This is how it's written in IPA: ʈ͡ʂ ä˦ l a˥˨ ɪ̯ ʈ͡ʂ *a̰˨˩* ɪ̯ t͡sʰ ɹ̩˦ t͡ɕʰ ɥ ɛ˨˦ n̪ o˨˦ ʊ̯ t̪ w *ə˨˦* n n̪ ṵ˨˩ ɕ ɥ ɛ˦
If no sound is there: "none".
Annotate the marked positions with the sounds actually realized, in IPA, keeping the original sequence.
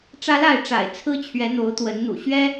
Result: a̰˨˩, ə˨˦

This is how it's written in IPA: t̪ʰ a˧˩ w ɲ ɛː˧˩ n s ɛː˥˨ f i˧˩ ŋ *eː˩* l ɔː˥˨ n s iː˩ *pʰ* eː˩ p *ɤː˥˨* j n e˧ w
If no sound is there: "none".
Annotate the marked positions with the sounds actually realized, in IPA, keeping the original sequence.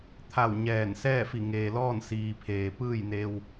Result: eː˩, pʰ, ɯː˥˨

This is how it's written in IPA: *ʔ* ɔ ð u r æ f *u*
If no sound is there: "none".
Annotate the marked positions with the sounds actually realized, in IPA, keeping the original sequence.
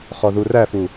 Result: χ, u

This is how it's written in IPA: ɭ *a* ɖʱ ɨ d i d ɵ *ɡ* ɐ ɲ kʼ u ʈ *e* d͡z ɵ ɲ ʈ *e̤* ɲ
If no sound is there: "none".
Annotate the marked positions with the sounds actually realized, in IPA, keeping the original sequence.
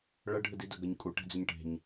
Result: ɐ, ɡ, e̤, e̤

